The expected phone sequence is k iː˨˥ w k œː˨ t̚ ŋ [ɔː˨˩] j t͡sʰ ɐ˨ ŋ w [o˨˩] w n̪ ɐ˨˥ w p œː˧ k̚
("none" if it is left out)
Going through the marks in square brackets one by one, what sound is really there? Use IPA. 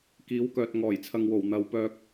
ɔː˨˩, o˨˩

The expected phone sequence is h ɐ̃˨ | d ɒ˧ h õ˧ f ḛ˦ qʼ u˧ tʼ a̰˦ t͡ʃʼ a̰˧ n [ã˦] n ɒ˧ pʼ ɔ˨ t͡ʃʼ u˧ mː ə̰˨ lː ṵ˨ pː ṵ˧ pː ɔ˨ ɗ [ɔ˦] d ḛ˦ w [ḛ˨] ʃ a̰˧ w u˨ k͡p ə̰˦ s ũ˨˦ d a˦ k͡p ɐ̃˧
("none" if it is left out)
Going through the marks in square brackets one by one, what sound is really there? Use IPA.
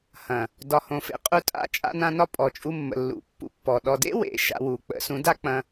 ã˧, ɔ˨, ḛ˨

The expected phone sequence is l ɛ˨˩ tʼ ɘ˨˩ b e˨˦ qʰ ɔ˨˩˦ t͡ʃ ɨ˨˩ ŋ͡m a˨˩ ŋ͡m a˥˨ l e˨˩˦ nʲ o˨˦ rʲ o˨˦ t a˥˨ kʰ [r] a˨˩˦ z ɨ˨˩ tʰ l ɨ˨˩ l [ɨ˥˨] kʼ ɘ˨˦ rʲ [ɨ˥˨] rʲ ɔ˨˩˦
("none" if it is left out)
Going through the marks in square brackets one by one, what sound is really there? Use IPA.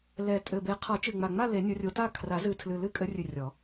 r, ɨ˥˨, ɨ˨˩

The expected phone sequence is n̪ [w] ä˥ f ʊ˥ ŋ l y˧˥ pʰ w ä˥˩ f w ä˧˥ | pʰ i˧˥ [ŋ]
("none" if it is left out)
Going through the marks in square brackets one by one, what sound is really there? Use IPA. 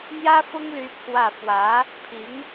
j, ŋ

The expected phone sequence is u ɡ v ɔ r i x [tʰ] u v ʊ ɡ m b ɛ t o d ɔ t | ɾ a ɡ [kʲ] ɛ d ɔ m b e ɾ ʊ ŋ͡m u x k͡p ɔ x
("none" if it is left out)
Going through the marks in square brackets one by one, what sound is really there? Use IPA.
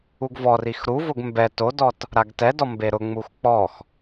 ɾ, t

